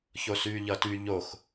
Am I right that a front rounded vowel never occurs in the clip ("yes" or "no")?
no